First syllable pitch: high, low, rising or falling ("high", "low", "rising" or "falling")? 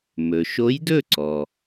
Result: low